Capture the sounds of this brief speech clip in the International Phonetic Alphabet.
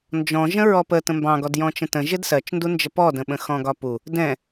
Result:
n d͡ʒ ɔ̃ ʒ ə̃ ɹ ɔ p ə t ə̃ m b ɑ̃ ɡ ɔ d j ɔ̃ t͡ʃ ə̃ t ə̃ ʒ ɪ d s ɜ t͡ʃ n d u n d͡ʒ ə p ɔ d ə̃ ɓ ə̃ x ɔ̃ ɡ ɒ p u | d ɛ̃

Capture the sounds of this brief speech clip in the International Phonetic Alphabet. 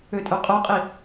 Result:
ø tʼ œ qʼ o qʼ i

